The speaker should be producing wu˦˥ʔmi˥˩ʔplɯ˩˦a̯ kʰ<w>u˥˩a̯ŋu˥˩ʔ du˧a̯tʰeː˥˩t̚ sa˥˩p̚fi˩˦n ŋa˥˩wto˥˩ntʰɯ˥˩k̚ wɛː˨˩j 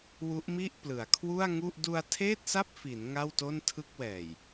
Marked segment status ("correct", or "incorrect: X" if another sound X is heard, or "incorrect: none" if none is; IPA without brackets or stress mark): correct